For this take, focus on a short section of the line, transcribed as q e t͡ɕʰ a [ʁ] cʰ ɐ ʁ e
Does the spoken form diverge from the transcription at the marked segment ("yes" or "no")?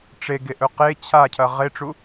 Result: yes